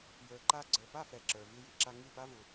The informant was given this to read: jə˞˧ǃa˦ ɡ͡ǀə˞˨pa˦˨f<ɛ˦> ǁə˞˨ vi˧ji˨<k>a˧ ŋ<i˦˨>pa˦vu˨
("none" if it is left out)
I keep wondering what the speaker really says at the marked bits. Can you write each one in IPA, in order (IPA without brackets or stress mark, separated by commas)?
ɛ˨, ǁ, i˦˨